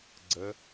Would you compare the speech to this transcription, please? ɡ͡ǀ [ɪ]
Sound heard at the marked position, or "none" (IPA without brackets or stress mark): ə